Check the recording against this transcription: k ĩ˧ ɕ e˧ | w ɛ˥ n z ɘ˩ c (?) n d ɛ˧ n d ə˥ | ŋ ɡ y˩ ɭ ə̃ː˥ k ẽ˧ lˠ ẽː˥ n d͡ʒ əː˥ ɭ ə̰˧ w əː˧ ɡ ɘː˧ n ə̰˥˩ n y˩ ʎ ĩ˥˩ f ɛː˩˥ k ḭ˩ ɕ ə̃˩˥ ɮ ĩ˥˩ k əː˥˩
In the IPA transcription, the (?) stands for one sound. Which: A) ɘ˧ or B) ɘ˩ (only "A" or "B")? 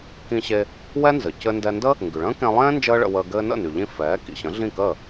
A